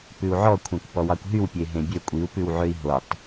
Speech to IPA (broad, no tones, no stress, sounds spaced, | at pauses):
p ʉ u̯ ʕ ɔ kʷʰ ẽ kʷ p ɔ w ɑ kʷ ɦ y w pʲ e ɦ ẽ bʲ ø kʷʼ i u̯ p ʉ w ʕ ø i̯ ɦ o tˤ